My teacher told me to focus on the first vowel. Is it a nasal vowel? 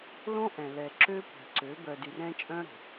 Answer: yes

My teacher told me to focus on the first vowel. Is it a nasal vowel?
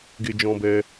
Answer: no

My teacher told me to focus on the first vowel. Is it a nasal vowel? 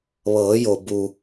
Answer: no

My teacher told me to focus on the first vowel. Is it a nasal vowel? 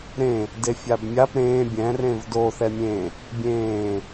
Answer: yes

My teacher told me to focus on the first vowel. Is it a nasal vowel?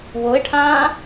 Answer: no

